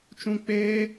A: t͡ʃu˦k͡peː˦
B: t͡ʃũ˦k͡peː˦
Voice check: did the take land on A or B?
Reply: B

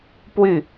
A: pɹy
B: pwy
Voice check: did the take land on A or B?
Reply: B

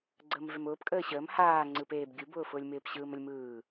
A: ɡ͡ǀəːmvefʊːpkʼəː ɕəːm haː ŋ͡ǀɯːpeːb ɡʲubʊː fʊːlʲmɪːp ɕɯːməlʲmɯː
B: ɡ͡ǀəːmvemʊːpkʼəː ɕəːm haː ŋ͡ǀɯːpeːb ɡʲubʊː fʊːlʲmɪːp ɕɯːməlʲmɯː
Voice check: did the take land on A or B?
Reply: B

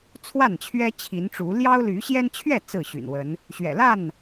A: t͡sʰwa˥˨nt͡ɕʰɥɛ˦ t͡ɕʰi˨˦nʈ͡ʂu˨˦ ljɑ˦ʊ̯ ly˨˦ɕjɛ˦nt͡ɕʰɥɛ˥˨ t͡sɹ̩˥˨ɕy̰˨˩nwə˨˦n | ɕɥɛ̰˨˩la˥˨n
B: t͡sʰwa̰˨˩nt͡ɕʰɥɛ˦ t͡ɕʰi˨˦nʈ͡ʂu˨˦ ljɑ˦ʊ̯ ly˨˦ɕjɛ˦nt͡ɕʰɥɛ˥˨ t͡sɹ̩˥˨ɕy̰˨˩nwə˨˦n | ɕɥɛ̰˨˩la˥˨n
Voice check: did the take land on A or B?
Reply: A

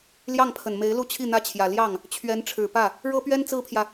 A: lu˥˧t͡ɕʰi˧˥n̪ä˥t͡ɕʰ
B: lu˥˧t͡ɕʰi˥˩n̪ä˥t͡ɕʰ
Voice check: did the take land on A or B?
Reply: B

